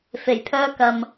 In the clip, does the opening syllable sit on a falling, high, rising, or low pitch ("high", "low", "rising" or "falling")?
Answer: low